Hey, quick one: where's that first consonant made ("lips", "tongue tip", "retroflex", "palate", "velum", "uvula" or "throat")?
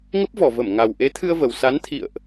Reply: velum